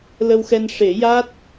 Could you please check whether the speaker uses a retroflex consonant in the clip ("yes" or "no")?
yes